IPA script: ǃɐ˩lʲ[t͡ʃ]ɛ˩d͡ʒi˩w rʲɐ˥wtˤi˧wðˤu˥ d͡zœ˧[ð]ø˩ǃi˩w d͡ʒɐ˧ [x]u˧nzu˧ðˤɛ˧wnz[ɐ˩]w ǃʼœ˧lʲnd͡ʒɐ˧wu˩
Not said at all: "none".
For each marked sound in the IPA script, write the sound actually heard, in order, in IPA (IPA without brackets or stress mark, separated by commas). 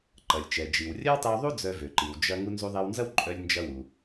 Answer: t͡ʃ, v, ŋ, ɐ˥